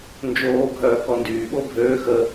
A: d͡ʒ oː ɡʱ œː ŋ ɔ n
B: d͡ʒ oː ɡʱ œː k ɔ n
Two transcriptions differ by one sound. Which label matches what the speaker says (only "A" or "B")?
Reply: B